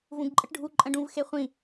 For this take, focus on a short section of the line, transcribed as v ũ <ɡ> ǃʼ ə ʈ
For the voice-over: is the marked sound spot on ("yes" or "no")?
yes